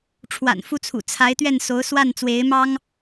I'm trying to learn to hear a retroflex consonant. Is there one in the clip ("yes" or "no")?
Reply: yes